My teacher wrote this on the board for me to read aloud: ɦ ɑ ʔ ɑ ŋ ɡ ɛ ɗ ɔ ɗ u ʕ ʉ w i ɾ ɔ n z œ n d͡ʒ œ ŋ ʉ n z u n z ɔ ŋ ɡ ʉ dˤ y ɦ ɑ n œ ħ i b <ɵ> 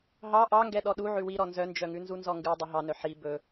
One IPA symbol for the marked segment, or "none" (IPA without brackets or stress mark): ɵ